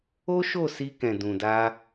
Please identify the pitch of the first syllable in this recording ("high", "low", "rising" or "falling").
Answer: high